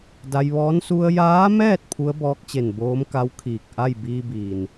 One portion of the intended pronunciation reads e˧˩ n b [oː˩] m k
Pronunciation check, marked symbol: incorrect: oː˧˥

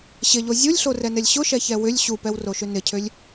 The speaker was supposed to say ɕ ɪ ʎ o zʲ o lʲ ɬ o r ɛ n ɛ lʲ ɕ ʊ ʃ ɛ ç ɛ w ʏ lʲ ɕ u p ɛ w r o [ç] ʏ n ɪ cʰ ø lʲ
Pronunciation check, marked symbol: incorrect: ʃ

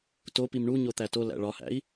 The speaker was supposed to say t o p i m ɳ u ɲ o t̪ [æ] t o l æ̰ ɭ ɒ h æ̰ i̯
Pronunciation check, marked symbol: correct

